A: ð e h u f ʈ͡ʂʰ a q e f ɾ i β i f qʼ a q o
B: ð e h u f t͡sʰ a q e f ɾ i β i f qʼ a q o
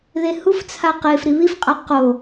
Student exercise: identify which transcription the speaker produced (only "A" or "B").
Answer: B